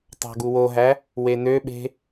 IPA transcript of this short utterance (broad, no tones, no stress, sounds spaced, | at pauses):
tˤ ɑ̤ ɡ u w o ɦ æ | w e n ø ɓ e̤